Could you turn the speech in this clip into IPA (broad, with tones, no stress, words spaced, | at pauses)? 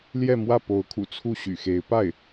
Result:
ljɛ˥˧mwä˥˩ po˧˥ʊ̯kʰṵ˨˩ t͡sʰu˥˩ɕy̰˨˩xe˧˥ɪ̯ pa˥˩ɪ̯